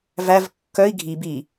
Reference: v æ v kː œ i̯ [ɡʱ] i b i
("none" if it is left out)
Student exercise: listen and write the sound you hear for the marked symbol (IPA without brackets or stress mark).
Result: ɡʱ